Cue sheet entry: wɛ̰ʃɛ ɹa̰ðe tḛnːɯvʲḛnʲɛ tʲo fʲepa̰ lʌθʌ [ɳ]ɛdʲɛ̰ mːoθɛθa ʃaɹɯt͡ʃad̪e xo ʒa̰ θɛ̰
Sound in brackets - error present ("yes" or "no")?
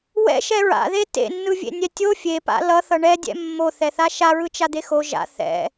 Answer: no